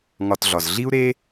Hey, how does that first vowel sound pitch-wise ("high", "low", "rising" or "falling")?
low